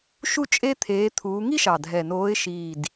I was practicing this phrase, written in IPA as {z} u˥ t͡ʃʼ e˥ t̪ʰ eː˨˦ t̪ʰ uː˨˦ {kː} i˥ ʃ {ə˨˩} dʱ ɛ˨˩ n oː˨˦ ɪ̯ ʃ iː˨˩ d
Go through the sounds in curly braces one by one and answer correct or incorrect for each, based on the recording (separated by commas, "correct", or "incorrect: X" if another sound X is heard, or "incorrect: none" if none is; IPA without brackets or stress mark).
incorrect: ʃ, incorrect: ŋ, incorrect: ɑ˨˩